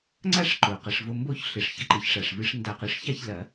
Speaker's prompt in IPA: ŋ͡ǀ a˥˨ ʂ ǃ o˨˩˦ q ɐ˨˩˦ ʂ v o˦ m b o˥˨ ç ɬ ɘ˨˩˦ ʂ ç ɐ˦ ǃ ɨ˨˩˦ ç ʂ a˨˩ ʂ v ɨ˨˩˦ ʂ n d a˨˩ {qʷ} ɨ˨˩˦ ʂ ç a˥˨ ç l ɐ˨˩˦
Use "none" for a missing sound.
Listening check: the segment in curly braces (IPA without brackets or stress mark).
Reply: q